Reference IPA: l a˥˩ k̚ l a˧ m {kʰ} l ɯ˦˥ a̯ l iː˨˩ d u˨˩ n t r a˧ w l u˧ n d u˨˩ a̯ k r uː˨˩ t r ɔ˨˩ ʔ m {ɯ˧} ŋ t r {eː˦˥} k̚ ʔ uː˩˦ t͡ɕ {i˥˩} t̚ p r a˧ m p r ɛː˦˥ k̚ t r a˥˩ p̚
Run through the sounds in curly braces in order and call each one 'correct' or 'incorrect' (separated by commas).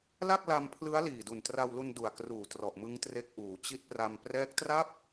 incorrect, incorrect, incorrect, incorrect